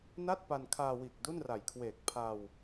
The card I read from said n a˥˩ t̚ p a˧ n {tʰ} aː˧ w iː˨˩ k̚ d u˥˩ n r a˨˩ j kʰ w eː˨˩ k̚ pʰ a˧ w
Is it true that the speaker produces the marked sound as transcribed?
no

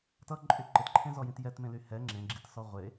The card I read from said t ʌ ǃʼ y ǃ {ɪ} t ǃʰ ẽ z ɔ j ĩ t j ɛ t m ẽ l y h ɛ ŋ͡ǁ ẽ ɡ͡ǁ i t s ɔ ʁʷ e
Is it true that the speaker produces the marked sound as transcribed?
yes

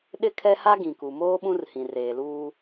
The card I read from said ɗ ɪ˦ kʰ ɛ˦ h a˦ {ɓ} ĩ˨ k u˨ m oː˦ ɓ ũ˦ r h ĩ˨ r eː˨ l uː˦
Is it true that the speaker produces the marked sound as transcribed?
no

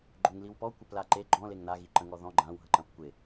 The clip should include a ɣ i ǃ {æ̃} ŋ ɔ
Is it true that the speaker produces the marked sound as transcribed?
no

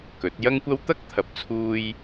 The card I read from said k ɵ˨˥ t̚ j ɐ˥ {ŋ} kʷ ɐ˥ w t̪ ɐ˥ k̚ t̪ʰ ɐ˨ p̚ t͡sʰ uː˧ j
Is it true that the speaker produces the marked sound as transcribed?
yes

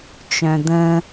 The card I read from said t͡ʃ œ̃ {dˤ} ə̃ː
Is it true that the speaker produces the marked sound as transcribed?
no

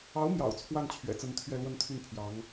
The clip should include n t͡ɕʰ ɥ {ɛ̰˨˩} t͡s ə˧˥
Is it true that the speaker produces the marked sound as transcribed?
yes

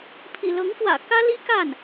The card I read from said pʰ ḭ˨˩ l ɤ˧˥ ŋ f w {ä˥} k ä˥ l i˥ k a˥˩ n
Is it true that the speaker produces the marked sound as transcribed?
no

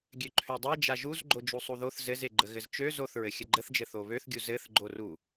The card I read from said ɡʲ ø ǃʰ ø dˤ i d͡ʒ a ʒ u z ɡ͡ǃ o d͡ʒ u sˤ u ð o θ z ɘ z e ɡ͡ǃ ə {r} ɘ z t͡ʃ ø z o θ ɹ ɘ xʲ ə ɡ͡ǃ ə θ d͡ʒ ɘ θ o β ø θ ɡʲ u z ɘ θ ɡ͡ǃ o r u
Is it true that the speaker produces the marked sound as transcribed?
no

